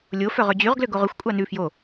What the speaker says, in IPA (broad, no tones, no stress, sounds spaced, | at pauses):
lʲ o f œ ʁ ø d͡ʑ y ʁ ɡ l ø ɡ o ʁ ø xʷ kʷʼ ɑ n ʉ f j o